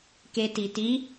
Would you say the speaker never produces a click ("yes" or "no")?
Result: yes